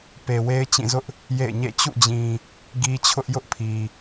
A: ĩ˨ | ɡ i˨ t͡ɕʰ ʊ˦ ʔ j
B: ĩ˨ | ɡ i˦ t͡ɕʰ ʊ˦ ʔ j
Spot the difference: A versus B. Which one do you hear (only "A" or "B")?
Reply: B